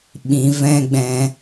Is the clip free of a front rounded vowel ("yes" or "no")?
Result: yes